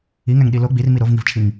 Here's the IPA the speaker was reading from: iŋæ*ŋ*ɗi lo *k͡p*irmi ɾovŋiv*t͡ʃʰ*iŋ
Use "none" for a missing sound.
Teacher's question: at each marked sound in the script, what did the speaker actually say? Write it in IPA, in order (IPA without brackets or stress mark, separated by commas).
ŋ, ɡ͡b, t͡ʃʰ